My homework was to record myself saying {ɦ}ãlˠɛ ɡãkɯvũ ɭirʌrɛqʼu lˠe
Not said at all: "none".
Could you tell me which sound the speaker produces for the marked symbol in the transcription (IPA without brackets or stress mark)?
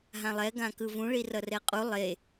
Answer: ɦ